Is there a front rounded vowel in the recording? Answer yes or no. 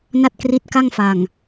no